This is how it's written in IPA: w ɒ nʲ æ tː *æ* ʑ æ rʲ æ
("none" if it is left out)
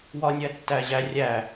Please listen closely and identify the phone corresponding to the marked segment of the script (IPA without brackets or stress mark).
æ